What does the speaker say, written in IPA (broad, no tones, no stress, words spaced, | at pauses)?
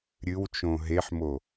ɾʲɨw t͡ʃõɦeħmo